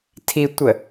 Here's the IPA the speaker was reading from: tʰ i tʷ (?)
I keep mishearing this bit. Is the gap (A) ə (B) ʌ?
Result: A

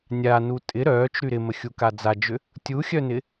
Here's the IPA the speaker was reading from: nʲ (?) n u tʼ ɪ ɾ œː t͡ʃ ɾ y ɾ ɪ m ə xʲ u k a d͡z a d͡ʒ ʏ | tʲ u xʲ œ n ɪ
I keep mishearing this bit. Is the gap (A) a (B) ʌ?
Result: A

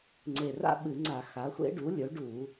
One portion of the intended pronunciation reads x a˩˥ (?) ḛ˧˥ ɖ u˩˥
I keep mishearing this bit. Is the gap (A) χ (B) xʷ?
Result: B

